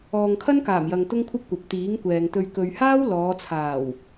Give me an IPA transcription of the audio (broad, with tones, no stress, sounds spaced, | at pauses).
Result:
ɔː˨ ŋ kʰ ɐ˥ n k aː˨˩ m j ɐ˨ ŋ t̪ ʊ˥ ŋ kʷʰ ɐ˥ p̚ kʷ ɐ˨ p̚ t̪ iː˨˥ ŋ kʷ ɛː˨ ŋ t̪ ɵ˧ ɥ k ɵ˨ ɥ h aː˥ w l ɔː˨˧ t͡sʰ aː˨˩ w